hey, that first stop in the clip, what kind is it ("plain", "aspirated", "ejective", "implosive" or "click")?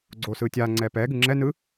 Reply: click